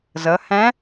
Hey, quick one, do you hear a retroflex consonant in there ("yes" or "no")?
no